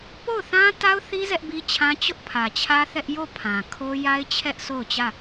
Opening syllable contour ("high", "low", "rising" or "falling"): falling